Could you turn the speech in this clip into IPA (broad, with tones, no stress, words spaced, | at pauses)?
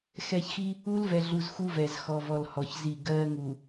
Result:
xɛ˨çxi˦ | u˦lvɛ˨ɮu˨z xu˦vɛ˨z xɔ˨vɔ˨l hɔ˨çzi˦˨ ɡɜ˦ŋu˨